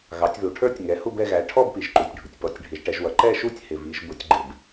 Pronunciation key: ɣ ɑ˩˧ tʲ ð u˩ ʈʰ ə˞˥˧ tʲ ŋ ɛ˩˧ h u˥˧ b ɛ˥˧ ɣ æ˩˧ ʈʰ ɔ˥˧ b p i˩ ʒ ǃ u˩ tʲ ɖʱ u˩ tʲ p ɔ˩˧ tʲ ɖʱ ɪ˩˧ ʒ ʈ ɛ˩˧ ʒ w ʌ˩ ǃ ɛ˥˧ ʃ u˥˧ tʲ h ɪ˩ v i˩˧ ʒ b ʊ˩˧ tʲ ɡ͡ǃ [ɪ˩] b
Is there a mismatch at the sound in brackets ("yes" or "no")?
no